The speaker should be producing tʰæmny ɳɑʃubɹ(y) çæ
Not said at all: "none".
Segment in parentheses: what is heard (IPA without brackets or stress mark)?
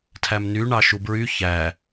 y